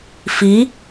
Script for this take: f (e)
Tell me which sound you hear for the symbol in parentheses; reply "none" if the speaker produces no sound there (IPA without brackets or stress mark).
i